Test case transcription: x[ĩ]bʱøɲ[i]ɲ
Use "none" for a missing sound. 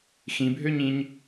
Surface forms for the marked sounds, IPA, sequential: ĩ, ĩ

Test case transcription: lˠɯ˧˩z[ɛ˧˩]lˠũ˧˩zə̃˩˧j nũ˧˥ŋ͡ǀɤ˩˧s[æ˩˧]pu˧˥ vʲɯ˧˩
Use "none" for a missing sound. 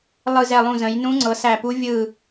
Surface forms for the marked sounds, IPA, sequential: ɛ˧˩, æ˧˩

